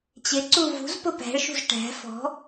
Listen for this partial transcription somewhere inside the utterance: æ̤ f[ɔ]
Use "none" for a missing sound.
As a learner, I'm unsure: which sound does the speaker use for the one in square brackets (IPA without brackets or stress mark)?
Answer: ɔ̤